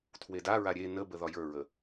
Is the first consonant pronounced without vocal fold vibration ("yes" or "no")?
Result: yes